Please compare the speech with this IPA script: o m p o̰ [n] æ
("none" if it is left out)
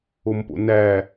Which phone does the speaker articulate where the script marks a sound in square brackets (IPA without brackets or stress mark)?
n